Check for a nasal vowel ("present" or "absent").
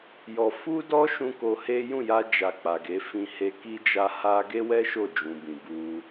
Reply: present